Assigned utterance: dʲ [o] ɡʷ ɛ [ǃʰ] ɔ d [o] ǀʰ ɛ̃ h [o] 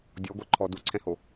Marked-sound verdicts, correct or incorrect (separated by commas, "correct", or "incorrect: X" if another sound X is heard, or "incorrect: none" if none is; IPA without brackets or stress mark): incorrect: ɔ, correct, incorrect: u, correct